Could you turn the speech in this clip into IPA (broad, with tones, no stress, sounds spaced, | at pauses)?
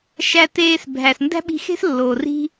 ʃ æ˧ t eː˧ s bʱ æ˩ s n d æ̤˥ ɓ i̤˧ x e̤˥ s lː oː˩ r i̤˧